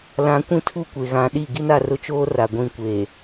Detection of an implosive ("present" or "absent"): present